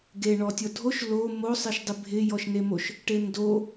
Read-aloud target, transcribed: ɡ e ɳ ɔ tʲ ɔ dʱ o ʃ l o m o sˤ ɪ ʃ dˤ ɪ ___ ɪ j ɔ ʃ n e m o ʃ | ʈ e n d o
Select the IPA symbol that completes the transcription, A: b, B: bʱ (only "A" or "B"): B